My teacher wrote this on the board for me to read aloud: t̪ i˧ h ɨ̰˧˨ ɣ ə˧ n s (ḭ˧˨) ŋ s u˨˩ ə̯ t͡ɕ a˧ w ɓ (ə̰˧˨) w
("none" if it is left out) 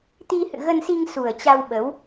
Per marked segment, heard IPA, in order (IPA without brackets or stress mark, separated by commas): i˧, ə˨˦